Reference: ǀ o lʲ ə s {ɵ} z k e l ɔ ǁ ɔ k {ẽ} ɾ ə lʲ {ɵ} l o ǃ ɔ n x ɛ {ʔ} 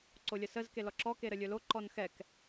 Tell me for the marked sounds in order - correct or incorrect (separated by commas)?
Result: incorrect, incorrect, correct, incorrect